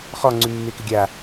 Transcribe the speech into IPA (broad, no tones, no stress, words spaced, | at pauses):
χɔ ŋ͡ǀʉmːekɪɡʲa